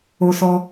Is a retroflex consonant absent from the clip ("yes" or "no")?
yes